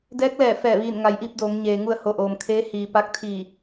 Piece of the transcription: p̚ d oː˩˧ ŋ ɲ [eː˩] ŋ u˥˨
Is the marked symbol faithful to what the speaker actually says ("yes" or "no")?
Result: yes